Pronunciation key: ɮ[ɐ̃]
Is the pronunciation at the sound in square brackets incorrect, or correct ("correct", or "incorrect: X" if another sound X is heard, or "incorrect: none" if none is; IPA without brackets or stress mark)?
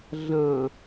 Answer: correct